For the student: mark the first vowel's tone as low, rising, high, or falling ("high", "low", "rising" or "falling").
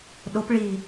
rising